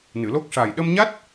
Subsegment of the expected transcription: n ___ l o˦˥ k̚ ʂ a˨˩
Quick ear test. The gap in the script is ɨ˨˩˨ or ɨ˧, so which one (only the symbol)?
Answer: ɨ˨˩˨